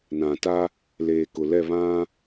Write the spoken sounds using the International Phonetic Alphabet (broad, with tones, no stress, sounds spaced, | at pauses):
n ã˨ t a˦ | l eː˨ k ʊ˨ l ɛ˦˨ β ã˦